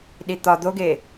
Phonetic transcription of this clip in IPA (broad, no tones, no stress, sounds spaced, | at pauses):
ɗ i t̪ ɒ d̪ o ɡ e